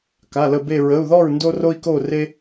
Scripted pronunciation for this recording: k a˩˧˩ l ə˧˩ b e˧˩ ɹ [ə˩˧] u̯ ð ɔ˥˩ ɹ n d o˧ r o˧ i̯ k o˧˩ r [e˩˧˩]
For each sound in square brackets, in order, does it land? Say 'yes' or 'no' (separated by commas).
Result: no, no